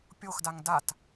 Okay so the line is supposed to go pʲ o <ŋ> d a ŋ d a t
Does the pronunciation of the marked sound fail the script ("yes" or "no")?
yes